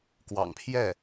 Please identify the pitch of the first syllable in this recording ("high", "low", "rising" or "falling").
low